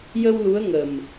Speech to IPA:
jə˧w lu˧˥ə̯ŋə˨˩m

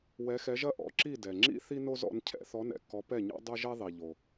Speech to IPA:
wɛ˨˦xɛ˨˦ʒɐ˥ ʔɔ̰˨˦ǁi˥˨ dɛ˩ŋ͡ǁḭ˥ θi˥no˥zɔ̰˨˦n cʰɛ̰˨˦θɔ˨˦nɛ̰˩kːɔ˨˦ pɛ˥˨ɲɔ̰˥ dˤɐ˥ʒɛ˥ ðˤi˩ ʎo˩

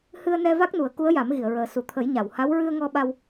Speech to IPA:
hɨ˧ə̯nɛ˧ va˦˥k̚nu˨˩˦ə̯ ku˧˥ə̯ja˨˩˦mɣi˨˩˨ə̯ɹəː˨˩ su˨˩˨t̪ʰə˨˩˦jɲa˨˩˨w ha˧˥w ɹɨ˧ə̯ŋɔ˧ɓa˧w

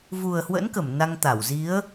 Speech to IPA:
vu˨˩ə̯hwə̰˧˥nkə˧˩m na˧ŋt̪a˧˩wzi˨˦ə̯

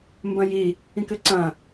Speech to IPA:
mbɐ̃ji | ĩkɘǀɐ̃

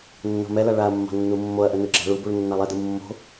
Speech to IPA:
nːo̤mɛla ɭaɐ̯mːɑ̤ nːumːoɐ̯ʔə nɯɡ͡ǁɑ̤ɭubuɭ nːalˠɛdɯ mːo̤

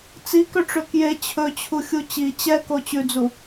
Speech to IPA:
t͡sikøʈ͡ʂø kje t͡ɕʰɵt͡ɕʰuxʲu t͡ɕi t͡ɕɛko t͡ɕʉd͡zu

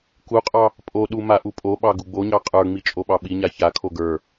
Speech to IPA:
kuqʼɑ | pʼoɗu maʔupʼoɓɑ ɡuɡ͡boɲɑ qʼə˞ŋ͡mi t͡ʃʼoɓɑɓiɲa çakʰo ɡə˞

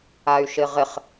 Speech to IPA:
ay̯ʃɪʁɪχ

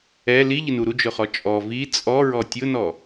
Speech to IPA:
ɛ liʎɪnu ɾud͡ʒʊχɔ t͡ʃʼɔ vi t͡sʼɔɹɔ tʲʊnɔ

